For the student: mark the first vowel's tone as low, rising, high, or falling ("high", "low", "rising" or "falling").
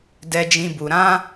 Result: high